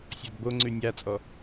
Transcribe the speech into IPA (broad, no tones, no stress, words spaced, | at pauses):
sʲɔdboŋ͡ǀʉ nʲat͡sʼɔ